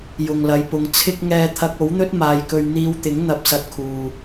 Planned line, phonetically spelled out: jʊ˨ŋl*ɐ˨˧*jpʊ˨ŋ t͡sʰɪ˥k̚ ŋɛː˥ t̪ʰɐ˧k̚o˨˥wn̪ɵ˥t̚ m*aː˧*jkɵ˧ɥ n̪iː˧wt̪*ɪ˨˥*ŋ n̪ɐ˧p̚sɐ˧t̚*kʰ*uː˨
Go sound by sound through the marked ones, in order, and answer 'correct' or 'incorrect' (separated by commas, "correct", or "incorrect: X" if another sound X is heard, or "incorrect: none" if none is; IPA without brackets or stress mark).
correct, correct, correct, correct